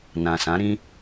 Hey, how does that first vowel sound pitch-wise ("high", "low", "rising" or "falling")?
low